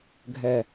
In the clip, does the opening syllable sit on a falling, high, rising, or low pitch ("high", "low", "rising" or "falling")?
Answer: low